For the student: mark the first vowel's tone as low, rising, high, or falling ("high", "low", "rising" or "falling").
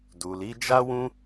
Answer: low